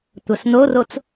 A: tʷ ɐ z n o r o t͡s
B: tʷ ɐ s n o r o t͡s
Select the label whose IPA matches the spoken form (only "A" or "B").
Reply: B